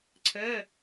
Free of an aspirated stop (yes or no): no